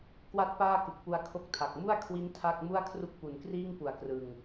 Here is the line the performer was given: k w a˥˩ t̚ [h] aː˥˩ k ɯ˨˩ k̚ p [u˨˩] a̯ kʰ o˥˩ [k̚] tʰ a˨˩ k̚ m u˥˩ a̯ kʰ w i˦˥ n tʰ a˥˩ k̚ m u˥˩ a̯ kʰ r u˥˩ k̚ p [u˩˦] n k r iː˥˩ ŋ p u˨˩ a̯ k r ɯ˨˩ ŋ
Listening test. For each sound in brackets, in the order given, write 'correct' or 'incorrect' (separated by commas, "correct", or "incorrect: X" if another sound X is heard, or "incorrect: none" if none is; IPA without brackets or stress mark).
incorrect: p, incorrect: u˧, correct, correct